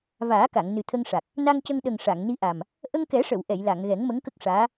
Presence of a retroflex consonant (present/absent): present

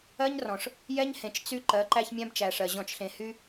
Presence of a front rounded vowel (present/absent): present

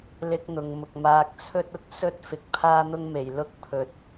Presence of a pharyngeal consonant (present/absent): absent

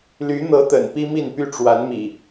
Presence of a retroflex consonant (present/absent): present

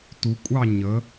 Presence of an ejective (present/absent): present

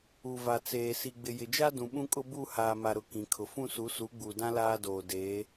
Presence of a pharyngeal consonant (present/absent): absent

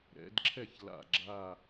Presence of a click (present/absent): present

